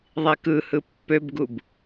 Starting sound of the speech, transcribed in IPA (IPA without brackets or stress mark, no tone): ðˤ